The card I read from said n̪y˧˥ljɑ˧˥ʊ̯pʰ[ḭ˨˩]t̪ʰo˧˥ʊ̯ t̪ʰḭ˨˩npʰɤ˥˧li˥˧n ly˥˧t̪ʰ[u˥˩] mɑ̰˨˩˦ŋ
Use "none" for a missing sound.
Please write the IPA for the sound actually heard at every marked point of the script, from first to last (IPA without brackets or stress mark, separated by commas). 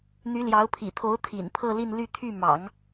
ḭ˨˩, y˥˩